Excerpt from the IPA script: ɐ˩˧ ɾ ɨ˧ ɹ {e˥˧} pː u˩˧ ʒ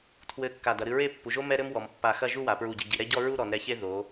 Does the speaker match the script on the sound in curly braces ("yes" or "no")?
yes